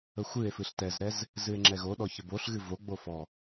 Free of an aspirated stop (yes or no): yes